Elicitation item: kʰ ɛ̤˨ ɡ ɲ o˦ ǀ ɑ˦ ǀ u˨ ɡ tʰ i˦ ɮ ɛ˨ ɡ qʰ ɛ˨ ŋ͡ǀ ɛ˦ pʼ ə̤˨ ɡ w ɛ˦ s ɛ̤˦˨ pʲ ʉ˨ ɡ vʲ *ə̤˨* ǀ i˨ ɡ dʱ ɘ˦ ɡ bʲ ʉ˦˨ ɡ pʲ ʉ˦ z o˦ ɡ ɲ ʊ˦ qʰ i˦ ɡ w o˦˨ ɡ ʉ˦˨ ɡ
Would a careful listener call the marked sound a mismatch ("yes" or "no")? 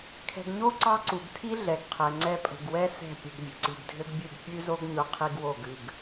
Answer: no